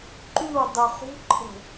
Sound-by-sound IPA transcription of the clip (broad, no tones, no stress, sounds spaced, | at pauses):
ǃ y w dˤ u χ ṳ ǃʼ ə̤